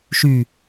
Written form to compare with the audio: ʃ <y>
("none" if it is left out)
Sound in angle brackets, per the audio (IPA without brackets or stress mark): y